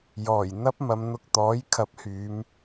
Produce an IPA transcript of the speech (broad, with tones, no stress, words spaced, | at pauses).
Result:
jɔː˨˩j n̪ɐ˥p̚ mɐ˨˧mn̪ʊ˧k̚t̪ɔː˨˥j kʰɐ˨˥p̚hyː˨˧m